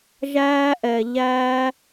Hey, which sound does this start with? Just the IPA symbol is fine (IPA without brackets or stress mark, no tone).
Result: ʒ